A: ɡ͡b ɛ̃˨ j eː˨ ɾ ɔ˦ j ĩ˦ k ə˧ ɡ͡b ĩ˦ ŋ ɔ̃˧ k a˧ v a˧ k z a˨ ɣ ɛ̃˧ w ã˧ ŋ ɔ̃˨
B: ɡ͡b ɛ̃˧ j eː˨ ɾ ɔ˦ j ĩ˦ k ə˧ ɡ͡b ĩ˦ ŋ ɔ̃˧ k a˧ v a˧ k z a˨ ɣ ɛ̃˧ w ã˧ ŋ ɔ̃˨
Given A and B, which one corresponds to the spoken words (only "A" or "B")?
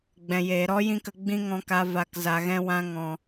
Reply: A